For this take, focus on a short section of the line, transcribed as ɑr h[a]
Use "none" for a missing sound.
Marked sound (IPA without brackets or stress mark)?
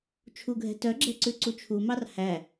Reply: æ